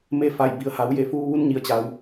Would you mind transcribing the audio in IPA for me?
m e˥˨ f a˧˩ j b i˩ ə̯ h a˩˧ w j e˧˩ f uː˧ ʋ u˧˥ n ɲ i˩˧ ə̯ t͡ɕ a˩˧ w

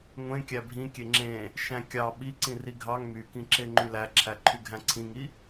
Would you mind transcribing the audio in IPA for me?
ŋʷ ẽ kʲ æ bʱ ĩ kʲ e ŋ͡ǁ ẽ | ʃ æ̃ kʲ ɑ ɓ i ǀ ĩ r i ɡʱ ɑ ŋ m y k ĩ ǁ e ŋ͡ǃ y l æ ǁʰ æ ǃʰ y ɡʱ æ̃ ǀʰ ĩ ŋ i

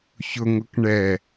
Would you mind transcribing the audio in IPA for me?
ç ʊ ŋ ʊ k ɳ ɛ

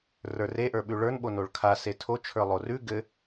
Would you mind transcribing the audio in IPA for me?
r ə˞ r e ʔ ə˞ ɓ ʉ ɭ ə˞ n ɓ o n o ɭ kʰ a s e tʰ o t͡ʃʰ ə˞ lˠ o r ʉ ɡ ɘ

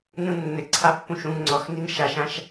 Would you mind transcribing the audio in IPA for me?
n ũ nː ɘ ǀʰ a pː ũ ʃ ũ ŋ ŋ͡ǀ ɔ x n i n ʃ a ʃ ã ʃ

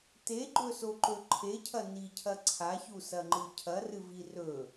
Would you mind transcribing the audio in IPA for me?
t e ɡ͡ǃ ɵ s o ǃ ɵ ǃʰ e cʰ ɐ n i cʰ ɐ ǀʰ a ç u s ɐ ŋ͡ǃ ɨ cʰ ɐ r ɨ v i r ɵ

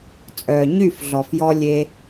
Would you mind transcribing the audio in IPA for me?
t͡sʼ œː˨ ɲ y˦˨ f ɮ ɔ˨ f j ɔ˧ lʲ e˧

